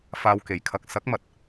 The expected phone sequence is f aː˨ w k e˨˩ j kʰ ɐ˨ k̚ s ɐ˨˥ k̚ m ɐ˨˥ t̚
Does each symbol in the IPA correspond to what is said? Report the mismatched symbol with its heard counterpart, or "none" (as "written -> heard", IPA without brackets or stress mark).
none